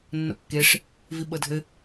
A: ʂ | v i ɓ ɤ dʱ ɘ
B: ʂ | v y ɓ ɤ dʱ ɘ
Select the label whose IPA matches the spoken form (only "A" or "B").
A